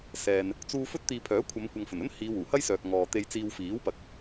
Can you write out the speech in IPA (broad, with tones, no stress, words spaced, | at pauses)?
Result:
sɛː˨n | t͡suː˧ fɵ˥t̚t̪iː˧pʰœː˨˥kʷʰɐ˨˧m kʷɐ˨ŋfɵ˨˩nɵ˥n hiː˨˧wuː˨˩hɐ˥jsœː˨k̚ ŋɔː˨t̪e˧jt͡siː˧w fiː˨˥wpɐ˨˥k̚